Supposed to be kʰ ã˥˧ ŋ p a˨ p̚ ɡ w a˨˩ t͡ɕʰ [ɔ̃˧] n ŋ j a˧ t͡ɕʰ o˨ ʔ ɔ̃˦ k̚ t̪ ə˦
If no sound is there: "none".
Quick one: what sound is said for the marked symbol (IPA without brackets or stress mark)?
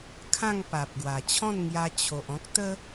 ɔ̃˥˧